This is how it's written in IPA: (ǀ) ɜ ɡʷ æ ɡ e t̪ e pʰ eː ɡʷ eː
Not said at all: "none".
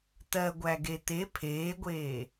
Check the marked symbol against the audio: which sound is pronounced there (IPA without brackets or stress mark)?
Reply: t̪